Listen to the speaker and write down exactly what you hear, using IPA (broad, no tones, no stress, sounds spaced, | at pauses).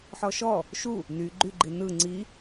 ħ ɔ ʃ ɔ | ʃ u | n y ɡ͡ǃ y ɡ͡ǃ i n ɯ ŋ͡ǀ i